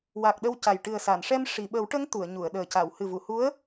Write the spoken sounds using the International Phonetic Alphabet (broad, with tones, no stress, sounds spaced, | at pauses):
w a˨˩ k̚ ɗ ə˧ w c a˨˩ j ʈ ɨ˨˩ ə̯ s a˨˩˨ n ʂ ɛ˧ m ʂ i˨˩˨ ɓ ə˨˩˦ w ʈ ə˧˥ ŋ t̪ u˨˩˨ ə̯ ɲ u˨˩˨ ə̯ ɗ əː˨˩ c a˨˩˨ w h ɨ˨˩ v u˨˩˨ h u˧˥ ə̯